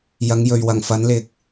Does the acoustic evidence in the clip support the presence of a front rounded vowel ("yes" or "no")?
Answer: no